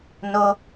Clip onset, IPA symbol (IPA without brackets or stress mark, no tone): n